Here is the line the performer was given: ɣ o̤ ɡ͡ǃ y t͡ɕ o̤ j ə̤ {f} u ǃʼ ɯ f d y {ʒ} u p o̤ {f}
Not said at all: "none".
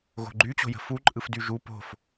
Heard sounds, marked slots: f, ʒ, f

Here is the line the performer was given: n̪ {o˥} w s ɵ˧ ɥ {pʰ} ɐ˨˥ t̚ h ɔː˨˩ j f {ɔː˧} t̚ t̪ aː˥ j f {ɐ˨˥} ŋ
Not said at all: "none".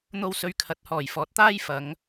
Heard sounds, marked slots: o˥, kʰ, ɔː˨˥, ɐ˨˥

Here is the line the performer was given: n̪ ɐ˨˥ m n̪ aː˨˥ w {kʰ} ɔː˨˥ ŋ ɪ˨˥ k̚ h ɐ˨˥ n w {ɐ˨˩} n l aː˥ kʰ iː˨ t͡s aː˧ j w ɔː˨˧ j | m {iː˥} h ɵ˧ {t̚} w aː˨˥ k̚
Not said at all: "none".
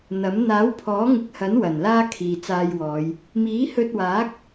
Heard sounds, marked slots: pʰ, ɐ˨˩, iː˨˥, t̚

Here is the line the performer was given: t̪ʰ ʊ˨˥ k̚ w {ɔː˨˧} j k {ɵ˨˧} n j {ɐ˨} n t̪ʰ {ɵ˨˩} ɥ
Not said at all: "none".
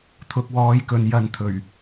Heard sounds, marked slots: ɔː˨˧, ɵ˨, ɐ˨, ɵ˨˩

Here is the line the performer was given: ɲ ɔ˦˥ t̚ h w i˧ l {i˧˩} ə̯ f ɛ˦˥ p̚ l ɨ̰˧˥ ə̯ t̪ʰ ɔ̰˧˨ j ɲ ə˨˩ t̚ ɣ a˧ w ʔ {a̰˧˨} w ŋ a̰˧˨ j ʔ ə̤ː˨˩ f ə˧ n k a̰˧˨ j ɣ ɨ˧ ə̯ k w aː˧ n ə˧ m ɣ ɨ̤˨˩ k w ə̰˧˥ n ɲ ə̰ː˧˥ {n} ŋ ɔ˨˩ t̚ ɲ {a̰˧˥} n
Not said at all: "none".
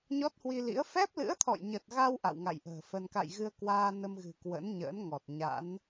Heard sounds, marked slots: ḭ˧˥, a̰˧˨, n, a̰˧˥

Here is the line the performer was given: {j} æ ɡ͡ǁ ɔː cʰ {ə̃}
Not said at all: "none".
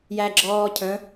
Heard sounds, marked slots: j, ə̃

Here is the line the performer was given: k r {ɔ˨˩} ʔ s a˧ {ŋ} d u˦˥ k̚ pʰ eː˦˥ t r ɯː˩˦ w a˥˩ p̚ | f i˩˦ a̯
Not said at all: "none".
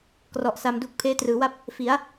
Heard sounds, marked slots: ɔ˨˩, m

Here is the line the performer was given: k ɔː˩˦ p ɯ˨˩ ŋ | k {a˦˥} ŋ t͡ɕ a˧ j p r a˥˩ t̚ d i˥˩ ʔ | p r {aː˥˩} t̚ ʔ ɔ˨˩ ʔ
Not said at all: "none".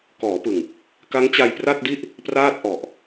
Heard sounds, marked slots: a˦˥, aː˥˩

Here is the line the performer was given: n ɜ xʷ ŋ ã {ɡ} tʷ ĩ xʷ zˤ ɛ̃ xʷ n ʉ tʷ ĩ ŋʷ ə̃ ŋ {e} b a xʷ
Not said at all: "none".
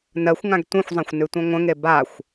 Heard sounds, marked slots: ɡ, e

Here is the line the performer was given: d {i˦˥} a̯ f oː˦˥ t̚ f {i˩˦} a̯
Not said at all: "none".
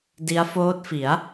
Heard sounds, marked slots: i˦˥, i˩˦

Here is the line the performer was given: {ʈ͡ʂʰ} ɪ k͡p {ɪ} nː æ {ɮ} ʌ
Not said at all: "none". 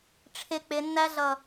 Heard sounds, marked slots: ʈ͡ʂʰ, ɪ, ɮ

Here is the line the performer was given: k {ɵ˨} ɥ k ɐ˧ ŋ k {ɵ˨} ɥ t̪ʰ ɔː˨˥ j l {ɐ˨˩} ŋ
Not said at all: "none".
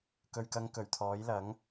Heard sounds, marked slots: ɵ˨, ɵ˨˩, ɐ˨˥

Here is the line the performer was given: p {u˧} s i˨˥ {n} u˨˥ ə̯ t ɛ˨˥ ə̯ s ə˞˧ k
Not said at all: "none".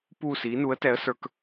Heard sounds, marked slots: u˥˧, n

